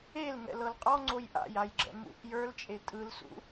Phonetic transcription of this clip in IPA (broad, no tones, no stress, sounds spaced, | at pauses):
e l ŋ ɛ̰ l ɤ l qʼ ɔ ŋ͡ǀ o j ʔ a̰ j a j ɡ͡ǁ ɛ̰ m ṵ ʔ j ə˞ l t͡ʃʼ e tʼ ɯ l s ṵ